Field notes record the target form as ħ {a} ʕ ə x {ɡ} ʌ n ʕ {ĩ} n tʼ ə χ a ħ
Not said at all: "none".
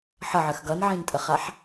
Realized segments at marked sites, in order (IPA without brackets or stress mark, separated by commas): ʌ, ɡ, ĩ